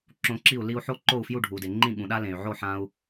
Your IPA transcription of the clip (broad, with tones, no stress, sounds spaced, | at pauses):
ǁ õ˧ ǁ i˥˩ u̯ l i˧ u̯ ħ o˥ ǃ o˥˩ u̯ f j u˥˩ ɖʱ u˩ d e˩ ŋ͡ǃ ĩ˥˩ ɠ ũ˩ ɗ a˥ l ẽ˩ y̯ ʕ o˥˩ ħ ã˧ u̯